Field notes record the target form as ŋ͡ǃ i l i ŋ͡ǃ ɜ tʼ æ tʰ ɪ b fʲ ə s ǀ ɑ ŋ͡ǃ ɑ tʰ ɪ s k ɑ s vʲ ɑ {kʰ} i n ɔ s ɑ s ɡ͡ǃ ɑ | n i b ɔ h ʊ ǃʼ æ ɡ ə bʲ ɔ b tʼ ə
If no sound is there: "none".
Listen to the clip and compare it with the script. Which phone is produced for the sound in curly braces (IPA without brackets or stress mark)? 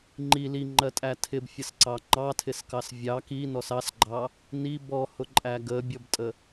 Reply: k